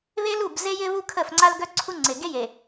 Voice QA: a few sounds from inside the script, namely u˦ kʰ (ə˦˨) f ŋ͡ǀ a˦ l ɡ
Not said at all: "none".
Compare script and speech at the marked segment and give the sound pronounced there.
ə˦˨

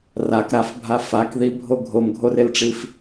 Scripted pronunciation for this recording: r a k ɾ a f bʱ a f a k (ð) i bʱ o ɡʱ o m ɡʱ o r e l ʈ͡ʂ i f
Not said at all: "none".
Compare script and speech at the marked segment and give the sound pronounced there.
ð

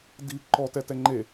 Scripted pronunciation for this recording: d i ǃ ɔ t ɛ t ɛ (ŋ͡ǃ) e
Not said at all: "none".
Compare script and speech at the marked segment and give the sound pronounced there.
ŋ͡ǃ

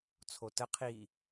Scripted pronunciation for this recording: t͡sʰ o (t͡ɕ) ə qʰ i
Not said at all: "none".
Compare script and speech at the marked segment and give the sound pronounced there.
t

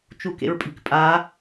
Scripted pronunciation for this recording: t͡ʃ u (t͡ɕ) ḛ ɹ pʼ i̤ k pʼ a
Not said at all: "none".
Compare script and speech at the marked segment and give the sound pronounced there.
k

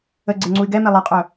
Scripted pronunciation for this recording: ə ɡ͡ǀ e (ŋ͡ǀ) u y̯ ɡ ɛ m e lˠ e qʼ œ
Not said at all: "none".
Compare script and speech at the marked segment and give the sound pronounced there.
ŋ͡ǀ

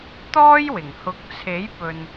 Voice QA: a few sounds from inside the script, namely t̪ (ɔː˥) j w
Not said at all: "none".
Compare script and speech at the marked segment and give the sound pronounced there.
ɔː˥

